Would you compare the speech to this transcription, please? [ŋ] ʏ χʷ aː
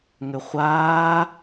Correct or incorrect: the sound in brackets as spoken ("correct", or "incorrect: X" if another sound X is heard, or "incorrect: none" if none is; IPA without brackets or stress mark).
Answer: correct